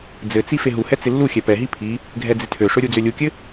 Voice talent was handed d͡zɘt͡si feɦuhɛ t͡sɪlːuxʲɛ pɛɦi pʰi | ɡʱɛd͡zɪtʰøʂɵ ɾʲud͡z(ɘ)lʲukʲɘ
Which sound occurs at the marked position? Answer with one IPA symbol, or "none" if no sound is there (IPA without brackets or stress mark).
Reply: ø